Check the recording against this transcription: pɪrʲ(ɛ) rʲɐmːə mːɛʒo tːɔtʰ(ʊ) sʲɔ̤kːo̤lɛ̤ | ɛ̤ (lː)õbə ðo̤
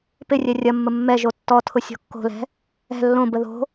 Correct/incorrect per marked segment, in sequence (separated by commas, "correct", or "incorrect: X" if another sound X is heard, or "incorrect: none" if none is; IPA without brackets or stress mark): correct, correct, correct